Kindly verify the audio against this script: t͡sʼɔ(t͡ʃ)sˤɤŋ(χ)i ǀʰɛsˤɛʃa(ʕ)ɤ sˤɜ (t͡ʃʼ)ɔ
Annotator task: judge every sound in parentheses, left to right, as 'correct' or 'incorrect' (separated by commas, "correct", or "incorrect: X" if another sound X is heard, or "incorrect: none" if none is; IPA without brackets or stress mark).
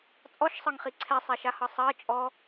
incorrect: ʃ, correct, incorrect: h, correct